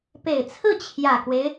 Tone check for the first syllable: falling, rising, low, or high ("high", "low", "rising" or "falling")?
low